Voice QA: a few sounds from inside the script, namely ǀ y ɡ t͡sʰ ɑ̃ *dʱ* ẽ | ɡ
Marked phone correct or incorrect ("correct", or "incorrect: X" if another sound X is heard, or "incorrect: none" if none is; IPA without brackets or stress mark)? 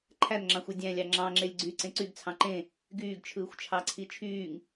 incorrect: ǃ